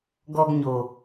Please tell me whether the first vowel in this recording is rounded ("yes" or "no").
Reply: yes